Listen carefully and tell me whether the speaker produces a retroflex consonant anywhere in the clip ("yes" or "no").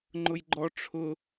yes